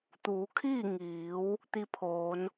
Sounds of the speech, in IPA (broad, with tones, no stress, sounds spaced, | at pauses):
t̪ uː˩˧ kʰ iː˥˨ ŋ iː˩˧ w | t̪ i˧ pʰ oː˩˧ n